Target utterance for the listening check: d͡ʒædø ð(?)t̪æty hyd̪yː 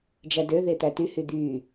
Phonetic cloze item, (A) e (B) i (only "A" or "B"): A